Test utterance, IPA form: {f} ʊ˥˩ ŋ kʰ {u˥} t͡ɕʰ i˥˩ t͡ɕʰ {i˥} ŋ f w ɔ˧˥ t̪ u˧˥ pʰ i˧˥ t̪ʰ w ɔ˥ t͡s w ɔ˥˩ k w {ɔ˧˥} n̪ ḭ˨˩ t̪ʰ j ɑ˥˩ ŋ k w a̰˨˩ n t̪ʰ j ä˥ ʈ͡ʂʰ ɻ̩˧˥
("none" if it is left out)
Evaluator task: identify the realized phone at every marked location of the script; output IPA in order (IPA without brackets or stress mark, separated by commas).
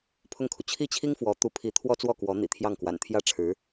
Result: pʰ, u˩, i˥, ɔ˧˥